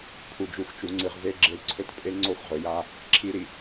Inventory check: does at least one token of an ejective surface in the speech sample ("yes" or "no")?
yes